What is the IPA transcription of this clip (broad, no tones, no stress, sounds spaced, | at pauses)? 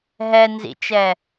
ɦ ɛ n z ḭ t͡ʃ ɛ